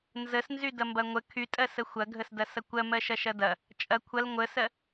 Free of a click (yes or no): yes